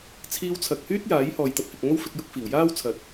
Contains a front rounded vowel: yes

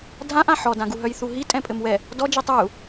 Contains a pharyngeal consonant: yes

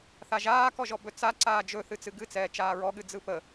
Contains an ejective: no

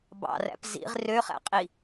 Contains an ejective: yes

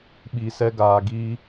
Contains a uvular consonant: no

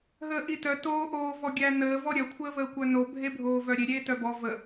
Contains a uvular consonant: no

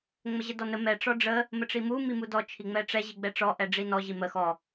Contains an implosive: no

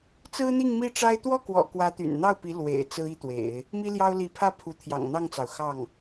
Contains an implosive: no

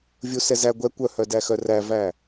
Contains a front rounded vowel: yes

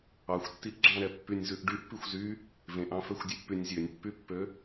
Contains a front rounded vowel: yes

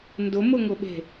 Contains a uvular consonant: no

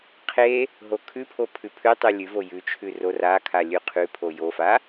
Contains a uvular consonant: yes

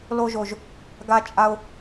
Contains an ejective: yes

